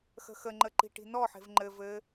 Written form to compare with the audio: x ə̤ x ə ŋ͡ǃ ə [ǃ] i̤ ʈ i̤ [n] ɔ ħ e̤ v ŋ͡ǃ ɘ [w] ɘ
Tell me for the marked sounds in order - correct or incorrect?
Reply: correct, correct, incorrect: v

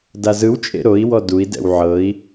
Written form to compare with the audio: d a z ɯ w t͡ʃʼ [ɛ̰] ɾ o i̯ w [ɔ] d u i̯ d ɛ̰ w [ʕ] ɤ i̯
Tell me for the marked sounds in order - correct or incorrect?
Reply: incorrect: ḛ, correct, correct

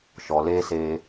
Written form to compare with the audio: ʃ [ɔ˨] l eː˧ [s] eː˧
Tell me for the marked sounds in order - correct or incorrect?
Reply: correct, correct

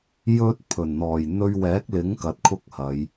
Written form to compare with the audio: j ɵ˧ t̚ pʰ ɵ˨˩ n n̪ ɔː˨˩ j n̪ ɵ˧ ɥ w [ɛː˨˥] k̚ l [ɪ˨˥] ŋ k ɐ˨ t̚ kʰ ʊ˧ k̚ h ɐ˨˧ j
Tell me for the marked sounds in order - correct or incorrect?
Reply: correct, correct

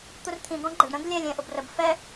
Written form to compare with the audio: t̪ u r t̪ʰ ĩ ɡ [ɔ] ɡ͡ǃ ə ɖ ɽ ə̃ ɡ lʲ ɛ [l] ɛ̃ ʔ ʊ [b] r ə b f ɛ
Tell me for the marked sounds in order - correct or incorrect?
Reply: incorrect: ɔ̃, incorrect: lʲ, correct

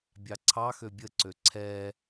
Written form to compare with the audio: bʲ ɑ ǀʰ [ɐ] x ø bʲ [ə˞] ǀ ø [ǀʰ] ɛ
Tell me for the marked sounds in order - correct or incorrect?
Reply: incorrect: ɑ, incorrect: ə, correct

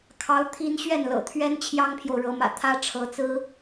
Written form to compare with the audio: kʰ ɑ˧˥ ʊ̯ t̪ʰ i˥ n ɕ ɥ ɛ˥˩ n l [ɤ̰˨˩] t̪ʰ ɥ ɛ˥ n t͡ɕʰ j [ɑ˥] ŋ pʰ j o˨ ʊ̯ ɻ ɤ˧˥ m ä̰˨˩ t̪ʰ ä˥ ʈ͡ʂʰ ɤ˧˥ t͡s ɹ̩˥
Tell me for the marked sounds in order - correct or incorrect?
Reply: correct, correct

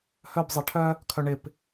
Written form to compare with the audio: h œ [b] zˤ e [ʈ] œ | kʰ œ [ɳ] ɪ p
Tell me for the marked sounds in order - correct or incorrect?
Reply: correct, incorrect: ʈʰ, correct

